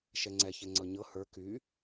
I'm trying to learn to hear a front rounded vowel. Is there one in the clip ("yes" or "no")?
yes